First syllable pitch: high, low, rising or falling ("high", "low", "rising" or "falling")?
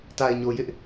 low